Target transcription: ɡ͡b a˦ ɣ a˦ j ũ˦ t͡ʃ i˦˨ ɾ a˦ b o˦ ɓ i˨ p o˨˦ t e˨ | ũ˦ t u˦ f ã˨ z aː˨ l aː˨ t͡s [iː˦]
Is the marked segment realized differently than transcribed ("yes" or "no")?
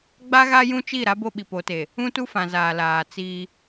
no